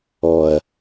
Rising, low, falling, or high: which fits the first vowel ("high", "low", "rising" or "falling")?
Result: low